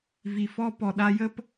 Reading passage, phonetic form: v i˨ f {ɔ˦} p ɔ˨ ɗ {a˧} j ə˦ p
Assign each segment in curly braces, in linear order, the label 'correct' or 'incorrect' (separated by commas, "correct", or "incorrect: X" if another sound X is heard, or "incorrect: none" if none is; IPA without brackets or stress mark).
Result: correct, correct